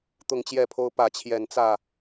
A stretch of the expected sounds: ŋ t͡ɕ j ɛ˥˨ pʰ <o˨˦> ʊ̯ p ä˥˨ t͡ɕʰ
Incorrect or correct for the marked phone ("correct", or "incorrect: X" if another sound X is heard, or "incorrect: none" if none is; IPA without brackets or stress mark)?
incorrect: o˦